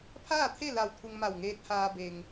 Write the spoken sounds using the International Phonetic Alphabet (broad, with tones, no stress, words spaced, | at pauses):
pʰaː˥˨t̪ʰe˥˨ la˧˩w t̪ʰu˧ŋma˧˩wŋeː˧˥t̚haː˧ be˩ŋ